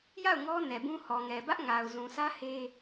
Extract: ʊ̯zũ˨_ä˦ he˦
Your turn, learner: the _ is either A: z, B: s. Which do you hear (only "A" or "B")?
B